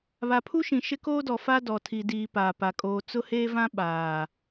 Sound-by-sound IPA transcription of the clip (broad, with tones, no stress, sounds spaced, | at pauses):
β a˨ pʰ u˦ ʃ ĩ˨ ʃ ɪ˦ k oː˦ d ɔ˨ f a˦ d ɔ˨ tʰ i˨ d iː˨ p aː˨ p a˨ kʼ oː˨ t͡s ʊ˦ h eː˦ v ã˦ ɓ aː˨